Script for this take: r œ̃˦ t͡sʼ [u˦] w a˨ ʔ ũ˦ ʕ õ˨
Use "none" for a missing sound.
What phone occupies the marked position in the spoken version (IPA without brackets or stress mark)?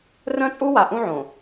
u˦